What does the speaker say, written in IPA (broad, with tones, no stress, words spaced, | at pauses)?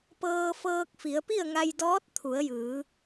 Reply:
pɤː˧fɤː˧k̚fi˩˧ə̯ pi˥˨ə̯ŋa˧jdɔː˧˥t̚ t̪ʰu˩˧ə̯jɯː˩˧